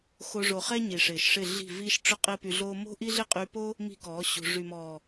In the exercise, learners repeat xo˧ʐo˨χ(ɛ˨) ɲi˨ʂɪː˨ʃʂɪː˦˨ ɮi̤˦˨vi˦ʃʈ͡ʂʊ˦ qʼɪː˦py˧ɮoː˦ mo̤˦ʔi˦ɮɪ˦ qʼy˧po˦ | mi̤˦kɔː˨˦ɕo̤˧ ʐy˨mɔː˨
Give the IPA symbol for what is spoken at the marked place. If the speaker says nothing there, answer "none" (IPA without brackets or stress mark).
ɛ˦